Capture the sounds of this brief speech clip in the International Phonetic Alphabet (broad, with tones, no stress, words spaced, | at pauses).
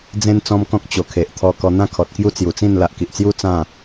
d͡zẽ˦n t͡sɔ̃˦mkɔ̃˦k̚ t͡ɕo˨˩kʰe˨ʔt̪ʰɔ˧ kɔ˧n̪ã˥˧kʰɔ˨t̚kju˦ t͡sju˨˩t͡sĩ˥˧n la˨ʔki˨ʔt͡sju˦ t͡sã˥˧